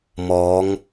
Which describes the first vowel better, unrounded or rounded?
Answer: rounded